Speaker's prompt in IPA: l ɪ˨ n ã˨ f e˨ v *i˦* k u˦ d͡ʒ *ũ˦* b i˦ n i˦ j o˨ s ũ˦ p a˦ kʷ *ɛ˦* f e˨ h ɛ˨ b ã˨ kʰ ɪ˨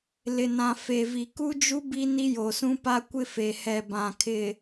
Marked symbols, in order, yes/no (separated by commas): no, no, no